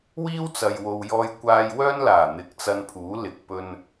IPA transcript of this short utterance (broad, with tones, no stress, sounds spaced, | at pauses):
w iː˥ w t͡s ɐ˨ j w o˨ w j ɔː˧ j kʷ aː˧ j w œː˥ n l aː˨˩ n̪ ɪ˨˥ k̚ t͡s ɐ˧ n pʰ uː˨˥ l ɪ˨ k̚ p ɵ˧ n